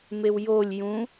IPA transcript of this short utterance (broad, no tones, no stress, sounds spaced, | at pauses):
m e w j o lʲ j ũ